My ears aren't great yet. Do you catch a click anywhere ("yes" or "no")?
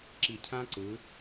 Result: yes